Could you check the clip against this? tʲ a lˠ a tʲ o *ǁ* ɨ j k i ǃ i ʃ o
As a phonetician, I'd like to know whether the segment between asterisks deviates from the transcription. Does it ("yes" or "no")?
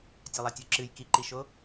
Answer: no